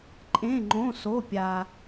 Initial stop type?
click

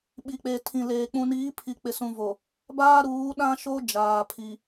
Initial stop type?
implosive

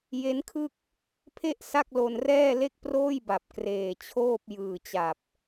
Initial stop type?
aspirated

